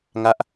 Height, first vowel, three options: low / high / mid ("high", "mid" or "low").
low